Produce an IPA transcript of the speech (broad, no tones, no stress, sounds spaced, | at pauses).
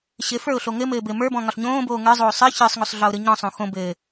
ɕ ɘ f ə˞ ʊ̯ ɬ o ŋ ɘ m ɘː b ɘ m ə˞ b ɔ̃ ŋ ɒ ɬ ɲ õː b oː ŋ ə˞ zˤ oː sˤ ə˞ ç ə˞ sˤ ŋ o sˤ ɮ ɒ ʊ̯ ɾ ɯ ɲ ɔ̃ sˤ õ x õ b ɘː